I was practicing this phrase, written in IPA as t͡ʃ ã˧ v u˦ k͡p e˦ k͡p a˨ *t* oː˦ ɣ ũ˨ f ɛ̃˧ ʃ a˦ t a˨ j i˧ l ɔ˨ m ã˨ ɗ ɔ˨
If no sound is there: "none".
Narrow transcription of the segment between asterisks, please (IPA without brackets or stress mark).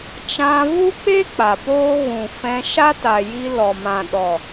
p